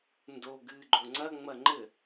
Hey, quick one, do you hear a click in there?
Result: yes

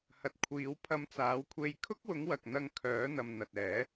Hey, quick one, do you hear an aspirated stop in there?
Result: yes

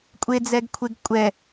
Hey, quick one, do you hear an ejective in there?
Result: yes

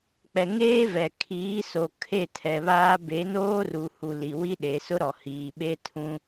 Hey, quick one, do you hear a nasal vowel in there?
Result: yes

